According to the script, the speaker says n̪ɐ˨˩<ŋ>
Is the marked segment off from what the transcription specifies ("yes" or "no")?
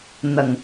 no